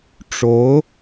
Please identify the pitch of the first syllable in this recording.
rising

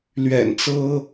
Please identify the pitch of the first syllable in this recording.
low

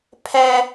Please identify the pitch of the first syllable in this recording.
high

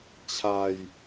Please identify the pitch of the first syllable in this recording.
low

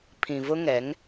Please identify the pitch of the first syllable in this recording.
low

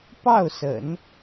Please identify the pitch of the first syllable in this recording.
falling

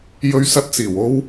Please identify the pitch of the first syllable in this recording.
high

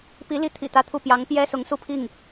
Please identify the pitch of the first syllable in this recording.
rising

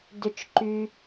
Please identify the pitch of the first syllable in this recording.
low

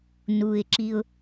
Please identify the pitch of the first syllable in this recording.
low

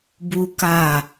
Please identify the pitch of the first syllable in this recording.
high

